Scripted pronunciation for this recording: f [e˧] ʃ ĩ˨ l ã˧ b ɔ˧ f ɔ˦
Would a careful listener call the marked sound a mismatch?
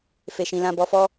yes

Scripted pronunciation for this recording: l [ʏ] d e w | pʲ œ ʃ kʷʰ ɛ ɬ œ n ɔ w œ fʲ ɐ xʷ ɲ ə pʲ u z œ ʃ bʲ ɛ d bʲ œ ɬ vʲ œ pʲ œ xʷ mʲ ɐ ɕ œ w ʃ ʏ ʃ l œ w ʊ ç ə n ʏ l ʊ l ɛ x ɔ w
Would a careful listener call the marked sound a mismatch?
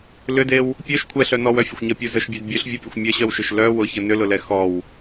no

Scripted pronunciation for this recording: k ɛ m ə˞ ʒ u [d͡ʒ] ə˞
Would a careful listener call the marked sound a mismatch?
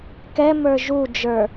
no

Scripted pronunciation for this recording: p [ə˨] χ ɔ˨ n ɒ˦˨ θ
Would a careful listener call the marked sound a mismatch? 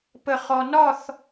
no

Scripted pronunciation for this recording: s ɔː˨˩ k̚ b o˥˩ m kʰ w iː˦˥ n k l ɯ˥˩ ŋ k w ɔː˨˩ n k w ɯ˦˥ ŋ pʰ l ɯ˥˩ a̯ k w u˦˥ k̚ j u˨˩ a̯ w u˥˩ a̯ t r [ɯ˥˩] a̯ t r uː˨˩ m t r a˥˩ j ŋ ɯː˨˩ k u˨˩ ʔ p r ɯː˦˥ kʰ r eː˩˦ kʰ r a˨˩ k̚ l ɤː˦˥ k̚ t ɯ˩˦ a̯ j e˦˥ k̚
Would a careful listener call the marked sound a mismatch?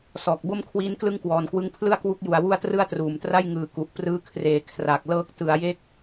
no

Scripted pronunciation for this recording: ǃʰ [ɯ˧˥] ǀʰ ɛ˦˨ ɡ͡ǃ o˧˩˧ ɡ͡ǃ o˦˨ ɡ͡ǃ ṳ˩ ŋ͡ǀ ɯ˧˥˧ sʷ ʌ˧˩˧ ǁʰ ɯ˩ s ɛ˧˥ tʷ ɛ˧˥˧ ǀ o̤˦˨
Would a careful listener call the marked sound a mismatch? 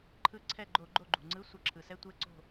no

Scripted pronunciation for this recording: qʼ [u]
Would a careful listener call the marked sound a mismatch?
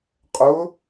yes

